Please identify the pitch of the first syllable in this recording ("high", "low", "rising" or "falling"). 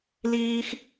high